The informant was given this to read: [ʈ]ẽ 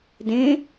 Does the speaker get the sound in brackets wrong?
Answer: yes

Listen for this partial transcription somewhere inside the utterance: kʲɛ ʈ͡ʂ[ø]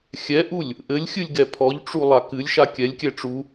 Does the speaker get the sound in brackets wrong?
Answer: yes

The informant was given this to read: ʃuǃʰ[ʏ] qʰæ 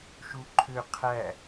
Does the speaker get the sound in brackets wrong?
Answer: no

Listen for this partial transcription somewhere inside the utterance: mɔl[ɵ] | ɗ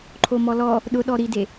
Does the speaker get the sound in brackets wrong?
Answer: yes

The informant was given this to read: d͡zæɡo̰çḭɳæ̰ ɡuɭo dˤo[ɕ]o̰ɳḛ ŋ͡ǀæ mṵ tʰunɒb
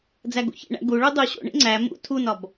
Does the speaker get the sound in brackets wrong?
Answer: no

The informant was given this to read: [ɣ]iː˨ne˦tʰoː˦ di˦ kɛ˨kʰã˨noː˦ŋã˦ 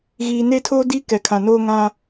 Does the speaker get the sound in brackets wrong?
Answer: no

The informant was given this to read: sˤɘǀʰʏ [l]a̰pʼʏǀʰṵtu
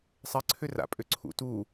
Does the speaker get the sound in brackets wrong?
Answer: yes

